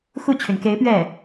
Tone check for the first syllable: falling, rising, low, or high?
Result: falling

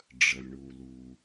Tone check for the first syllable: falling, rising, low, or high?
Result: low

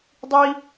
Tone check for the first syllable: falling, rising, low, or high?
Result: high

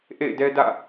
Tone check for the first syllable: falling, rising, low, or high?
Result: falling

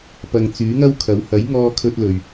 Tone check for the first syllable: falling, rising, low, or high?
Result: low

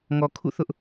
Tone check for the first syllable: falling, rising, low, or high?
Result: low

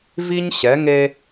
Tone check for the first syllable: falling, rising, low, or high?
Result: high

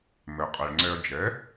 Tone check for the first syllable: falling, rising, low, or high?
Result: low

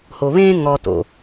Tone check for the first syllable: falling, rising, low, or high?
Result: low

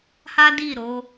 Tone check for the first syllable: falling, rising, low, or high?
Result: high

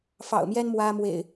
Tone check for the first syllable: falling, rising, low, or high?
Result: low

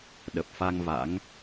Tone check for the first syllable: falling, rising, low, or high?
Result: low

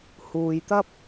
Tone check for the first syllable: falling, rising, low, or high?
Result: low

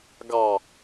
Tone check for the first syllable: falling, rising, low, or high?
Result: low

